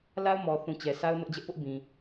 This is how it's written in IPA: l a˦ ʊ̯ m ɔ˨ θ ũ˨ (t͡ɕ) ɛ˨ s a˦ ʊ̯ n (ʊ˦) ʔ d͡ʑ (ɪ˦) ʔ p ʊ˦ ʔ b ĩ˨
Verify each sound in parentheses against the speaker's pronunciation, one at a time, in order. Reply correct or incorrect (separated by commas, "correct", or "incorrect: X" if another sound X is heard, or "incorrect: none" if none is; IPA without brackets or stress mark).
correct, correct, incorrect: ɛ˦